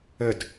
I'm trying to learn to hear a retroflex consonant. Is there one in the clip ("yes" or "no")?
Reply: no